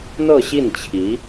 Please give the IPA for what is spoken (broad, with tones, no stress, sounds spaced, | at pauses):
n̪ ɤ˥˧ ɕ i˥˩ n t͡ɕʰ i˧˥